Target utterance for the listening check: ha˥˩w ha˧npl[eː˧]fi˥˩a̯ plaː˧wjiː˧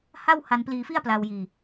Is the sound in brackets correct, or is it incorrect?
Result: incorrect